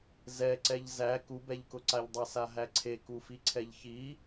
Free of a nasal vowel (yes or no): yes